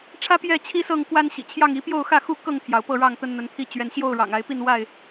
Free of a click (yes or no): yes